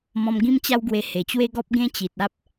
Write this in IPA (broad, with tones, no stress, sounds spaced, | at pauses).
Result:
m ɔ̃˧ m ɡ ĩ˦ m t͡ɕ a˦ w ɡ w e˧ h e˨˩ t͡ɕ w e˦ ɡ ɔ˦ p̚ ɡ ẽ˦ t͡ɕ i˨ t̚ a˦ p̚